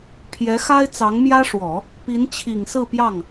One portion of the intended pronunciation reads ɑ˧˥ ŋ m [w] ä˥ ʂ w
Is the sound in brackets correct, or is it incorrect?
incorrect